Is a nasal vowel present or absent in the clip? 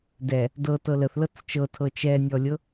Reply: absent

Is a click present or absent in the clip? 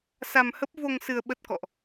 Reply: absent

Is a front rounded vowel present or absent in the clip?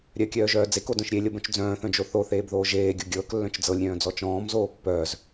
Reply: present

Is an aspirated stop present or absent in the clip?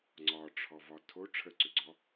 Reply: present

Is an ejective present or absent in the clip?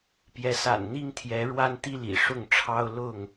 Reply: absent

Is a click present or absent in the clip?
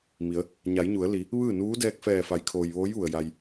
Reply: absent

